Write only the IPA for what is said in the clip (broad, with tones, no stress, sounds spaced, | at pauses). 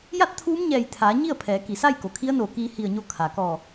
j a˥˨ t̚ t̪ʰ uː˧˥ m ɲ ɛː˧˩ j t̪ʰ aː˩˧ ɲ i˥˨ ə̯ pʰ ɛː˩˧ k i˩ s a˥˨ j k o˩ kʰ i˧˥ ə̯ n oː˧˩ k iː˧ h i˧˩ ə̯ ɲ o˧ kʰ a˩ k ɔː˧˩